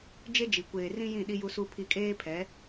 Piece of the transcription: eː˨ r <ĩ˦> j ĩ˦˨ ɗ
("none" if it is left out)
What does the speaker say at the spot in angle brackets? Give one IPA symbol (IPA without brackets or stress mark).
ĩ˦